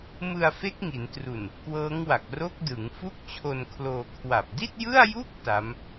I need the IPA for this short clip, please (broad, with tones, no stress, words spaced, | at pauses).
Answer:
mɯ˧a̯fe˦˥k̚ŋi˩˦ntru˨˩n | kwɤː˦˥ŋwa˨˩k̚ ro˦˥k̚dɯ˩˦ŋ fu˥˩k̚t͡ɕʰo˧nkʰloː˧ kʰwa˨˩p̚di˥˩t̚jɯ˥˩a̯ju˥˩k̚ ta˦˥m